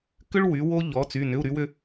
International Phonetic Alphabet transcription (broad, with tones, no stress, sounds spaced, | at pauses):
k ʏ˧ ɭ w y˩˧ w o˧ ʎ ɔ˩˧ t͡s y˩˧˩ n ʏ˩˧˩ u̯ ɾ y˧ w ʏ˧